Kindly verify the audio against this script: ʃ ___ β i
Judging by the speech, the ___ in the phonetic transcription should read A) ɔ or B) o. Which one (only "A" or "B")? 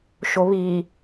B